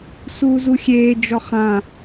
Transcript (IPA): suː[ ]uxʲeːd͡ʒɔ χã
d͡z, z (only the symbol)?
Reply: z